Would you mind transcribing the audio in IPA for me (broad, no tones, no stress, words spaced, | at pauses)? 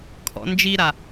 kʰɔ̰nd͡ʒiɾa